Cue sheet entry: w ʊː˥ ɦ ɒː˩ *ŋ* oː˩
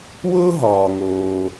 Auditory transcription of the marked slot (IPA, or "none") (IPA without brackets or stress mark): ŋ